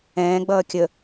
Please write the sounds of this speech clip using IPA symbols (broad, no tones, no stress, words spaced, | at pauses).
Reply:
ɛ̃ːɡ͡bʌː kʲə